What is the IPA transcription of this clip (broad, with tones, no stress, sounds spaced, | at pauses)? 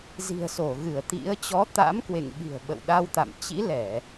z i̤˨˩ ə̯ s o˧˩ ɣ ɨ˧˩ ə̯ t̪ ḭ˧˥ ə̯ t͡ɕ ɔ˨˦ t̪ a̰˧˥ m k w ḛ˧˨ ŋ ɓ i̤˨˩ ə̯ ɓ ə̰˧˨ w ɗ a˧ w t̪ a̰˧˨ m t͡ɕ ḭ˧˥ l ɛ˧˩˨